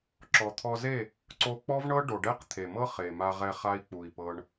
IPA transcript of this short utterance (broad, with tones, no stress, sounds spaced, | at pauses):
ǁ ɔ˨ t̪ʰ ɔ˧ z e˦˨ | ǀ o˧ k͡p ɔ˦ v ɳ ɤ˦ ɖ o˨ ɖ ɛ˦ q t̪ʰ e˨ m ɤ˦ χ e˨ m a˧ ʁ ɛ˧ χ a˦ i̯ k͡p u˨ i̯ p ɤ˧ ɳ